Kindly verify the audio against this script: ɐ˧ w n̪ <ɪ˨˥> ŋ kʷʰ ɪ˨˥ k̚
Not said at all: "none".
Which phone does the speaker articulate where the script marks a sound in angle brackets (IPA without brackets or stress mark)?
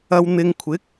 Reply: ɪ˧